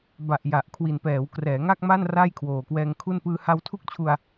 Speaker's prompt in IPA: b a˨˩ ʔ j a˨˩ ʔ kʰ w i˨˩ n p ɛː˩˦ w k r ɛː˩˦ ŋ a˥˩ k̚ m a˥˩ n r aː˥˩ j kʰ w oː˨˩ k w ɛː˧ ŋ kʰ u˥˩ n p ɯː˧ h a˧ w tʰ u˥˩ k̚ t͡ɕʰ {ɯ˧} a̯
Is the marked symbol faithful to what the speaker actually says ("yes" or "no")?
no